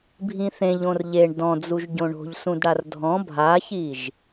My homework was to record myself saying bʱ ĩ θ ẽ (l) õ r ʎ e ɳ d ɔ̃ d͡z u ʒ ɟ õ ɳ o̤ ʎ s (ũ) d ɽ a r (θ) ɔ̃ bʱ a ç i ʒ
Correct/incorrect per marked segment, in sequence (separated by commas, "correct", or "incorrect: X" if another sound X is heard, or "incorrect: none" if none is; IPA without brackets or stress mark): incorrect: ʎ, correct, incorrect: dʱ